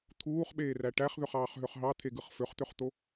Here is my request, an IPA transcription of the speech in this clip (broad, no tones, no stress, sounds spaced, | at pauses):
t̪ʰ uː χ ɓ eː r æ ʈ æ χ ð ø χ ɑː χ ɦ ø χ ɦ ɑ t̪ʰ e ɡ ɯ χ f ø χ t̪ ø χ t̪ o